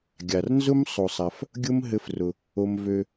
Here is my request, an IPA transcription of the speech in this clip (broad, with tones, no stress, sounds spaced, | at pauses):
ɡʲ a˨ r n z ʊ˦ m sˤ o˧ sˤ a˧ f | ɡʲ ʊ˦ m ɦ ɘ˦ f r ʊ˧ | o˧ m v ø˧